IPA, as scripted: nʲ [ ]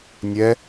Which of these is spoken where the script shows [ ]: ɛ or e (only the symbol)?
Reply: ɛ